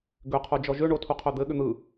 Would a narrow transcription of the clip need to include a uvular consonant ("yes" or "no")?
yes